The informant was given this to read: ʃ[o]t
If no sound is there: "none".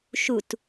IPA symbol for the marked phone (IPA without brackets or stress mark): u